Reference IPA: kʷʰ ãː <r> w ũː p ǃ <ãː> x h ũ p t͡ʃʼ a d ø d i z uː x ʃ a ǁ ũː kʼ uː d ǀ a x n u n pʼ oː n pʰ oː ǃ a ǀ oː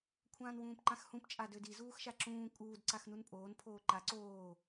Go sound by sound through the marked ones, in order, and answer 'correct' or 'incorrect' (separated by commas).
incorrect, incorrect